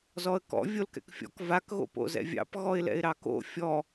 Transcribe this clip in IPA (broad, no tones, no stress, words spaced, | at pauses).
zɔə̯kɔ̰ vʲolkɛ̰kfʲɔ̰k vak ɣo̰po̰zɛ̰vʲɑ̰p ɣɔɪ̯lɛ̰ɪ̯ɾɑko̰ fʲɔ